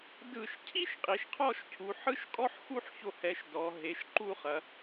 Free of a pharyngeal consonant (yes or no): no